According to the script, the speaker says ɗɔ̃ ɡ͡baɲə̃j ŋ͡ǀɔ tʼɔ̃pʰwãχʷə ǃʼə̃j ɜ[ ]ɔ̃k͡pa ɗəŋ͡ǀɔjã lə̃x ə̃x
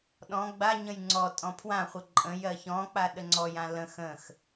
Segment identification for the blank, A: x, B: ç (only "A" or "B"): B